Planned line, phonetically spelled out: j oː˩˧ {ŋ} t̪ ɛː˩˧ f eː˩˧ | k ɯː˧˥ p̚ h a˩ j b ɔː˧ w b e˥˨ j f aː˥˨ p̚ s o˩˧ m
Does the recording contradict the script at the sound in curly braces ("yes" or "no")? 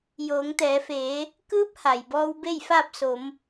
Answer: no